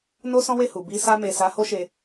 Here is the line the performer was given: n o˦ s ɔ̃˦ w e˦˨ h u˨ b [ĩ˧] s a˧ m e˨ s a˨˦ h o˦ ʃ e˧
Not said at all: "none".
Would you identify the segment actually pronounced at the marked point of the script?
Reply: i˧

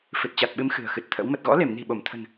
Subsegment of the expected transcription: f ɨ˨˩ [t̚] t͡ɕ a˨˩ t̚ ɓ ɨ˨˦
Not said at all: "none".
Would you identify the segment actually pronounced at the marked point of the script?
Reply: t̚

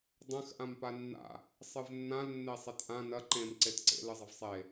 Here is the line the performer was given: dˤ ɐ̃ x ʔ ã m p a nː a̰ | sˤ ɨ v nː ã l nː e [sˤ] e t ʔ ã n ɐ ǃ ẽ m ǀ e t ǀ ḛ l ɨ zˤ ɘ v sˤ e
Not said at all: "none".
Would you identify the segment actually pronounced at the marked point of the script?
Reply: sˤ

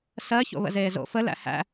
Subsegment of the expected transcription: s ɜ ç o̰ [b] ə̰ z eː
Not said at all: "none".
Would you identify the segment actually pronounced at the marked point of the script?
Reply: β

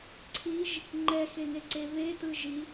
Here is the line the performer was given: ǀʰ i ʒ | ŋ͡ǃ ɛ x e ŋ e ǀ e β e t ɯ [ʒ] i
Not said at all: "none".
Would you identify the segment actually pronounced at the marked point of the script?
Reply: ʒ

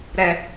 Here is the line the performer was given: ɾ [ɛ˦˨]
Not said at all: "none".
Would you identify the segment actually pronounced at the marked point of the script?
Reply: ɛ˦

